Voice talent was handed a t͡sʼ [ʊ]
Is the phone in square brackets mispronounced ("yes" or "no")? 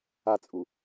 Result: yes